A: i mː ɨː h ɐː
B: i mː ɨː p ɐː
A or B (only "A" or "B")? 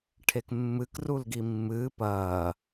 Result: B